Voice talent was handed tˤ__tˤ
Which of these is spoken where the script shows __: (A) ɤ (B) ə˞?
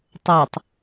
B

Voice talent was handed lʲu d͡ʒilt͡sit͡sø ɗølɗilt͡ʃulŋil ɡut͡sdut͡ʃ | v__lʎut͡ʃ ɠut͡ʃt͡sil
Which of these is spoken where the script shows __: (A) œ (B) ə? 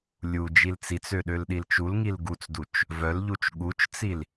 A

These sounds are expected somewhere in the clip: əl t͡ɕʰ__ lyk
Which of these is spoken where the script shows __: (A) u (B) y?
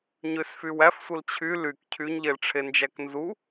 B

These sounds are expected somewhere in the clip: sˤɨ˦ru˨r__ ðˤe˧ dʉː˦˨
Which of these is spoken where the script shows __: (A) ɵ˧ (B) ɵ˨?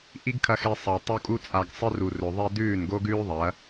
B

